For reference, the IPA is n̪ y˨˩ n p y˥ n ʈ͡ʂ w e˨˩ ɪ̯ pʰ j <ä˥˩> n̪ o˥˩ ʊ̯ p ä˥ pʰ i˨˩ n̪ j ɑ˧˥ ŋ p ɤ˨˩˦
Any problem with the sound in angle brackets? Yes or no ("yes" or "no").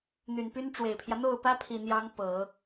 yes